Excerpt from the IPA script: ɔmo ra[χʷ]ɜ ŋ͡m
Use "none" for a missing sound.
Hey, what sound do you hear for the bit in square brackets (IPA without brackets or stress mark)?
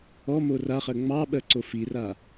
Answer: χ